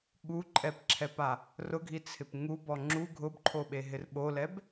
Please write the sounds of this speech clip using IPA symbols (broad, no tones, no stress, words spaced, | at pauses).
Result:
ɠuǃʼɛpǁʰɛpa | rʊɡʱit͡sʰɪp ŋubɔ ŋ͡ǁu ɡʱʊbǃʰoɓeɦɪr ɓolɛb